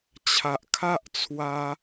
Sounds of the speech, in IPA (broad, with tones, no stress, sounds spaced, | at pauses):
t͡ɕʰ a˨ ʔ kʰ a˦ ʔ t͡sʰ w a˧